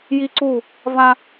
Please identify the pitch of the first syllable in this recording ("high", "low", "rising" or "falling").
high